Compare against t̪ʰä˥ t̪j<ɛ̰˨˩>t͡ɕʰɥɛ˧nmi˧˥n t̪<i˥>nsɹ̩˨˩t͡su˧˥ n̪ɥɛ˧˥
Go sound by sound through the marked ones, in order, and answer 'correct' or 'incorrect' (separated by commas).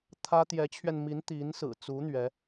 incorrect, incorrect